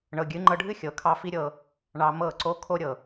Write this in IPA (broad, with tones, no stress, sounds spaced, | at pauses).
ɳ ɤ˨ ɡʲ ɨ˨˦ ŋ͡ǃ ɤ˧ ɖʱ ɨ˦ xʲ ɤ˨ kʰ ɑ˧ f i˦ ɾʲ ɤ˧ | ɳ ɑ˧ m ɤ˦˨ ǀ o˦ kʰ o˦ ɾʲ ɤ˨